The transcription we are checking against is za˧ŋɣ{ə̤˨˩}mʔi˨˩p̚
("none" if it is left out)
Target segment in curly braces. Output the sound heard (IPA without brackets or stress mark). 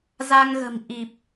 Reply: ə̤˨˩